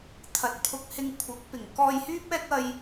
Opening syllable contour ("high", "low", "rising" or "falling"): low